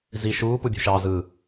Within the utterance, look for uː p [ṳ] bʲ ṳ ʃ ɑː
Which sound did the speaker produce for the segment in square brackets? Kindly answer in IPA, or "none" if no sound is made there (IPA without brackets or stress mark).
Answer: u